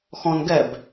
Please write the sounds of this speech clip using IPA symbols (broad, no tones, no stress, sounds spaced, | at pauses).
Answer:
x ɔ̃ n ɡ ɛ b